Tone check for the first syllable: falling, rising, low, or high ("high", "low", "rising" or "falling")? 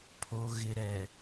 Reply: low